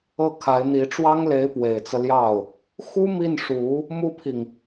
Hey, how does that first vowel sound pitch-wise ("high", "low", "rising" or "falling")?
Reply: falling